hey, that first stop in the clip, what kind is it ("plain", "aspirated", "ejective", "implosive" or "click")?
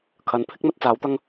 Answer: aspirated